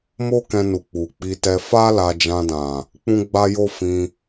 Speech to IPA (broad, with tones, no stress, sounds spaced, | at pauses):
m o˦ k ɛ̃˧ n u˨ k͡p u˨ k͡p i˧ t ɛ˧ f a˦ l a˧ d͡ʒ ã˧ d ã˨ | k͡p ũ˦ ɡ͡b a˦ j o˦ f ĩ˧